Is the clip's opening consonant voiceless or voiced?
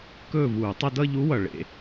voiceless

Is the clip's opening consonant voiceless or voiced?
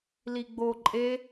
voiced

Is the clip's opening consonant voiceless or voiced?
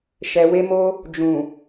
voiceless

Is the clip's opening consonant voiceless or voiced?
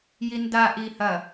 voiced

